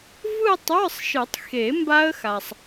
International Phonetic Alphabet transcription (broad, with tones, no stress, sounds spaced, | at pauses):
v ɯ˥˧ tˤ ə˞˧˥˧ sˤ ʃ ɨ˨˩˦ tˤ x e˨˩˦ m b a˦˥ ə̯ x a˨ sˤ